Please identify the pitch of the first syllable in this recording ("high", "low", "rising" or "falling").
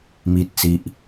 low